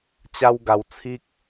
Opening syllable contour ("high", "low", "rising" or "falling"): high